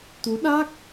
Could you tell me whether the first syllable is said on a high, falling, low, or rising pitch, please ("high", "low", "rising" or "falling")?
rising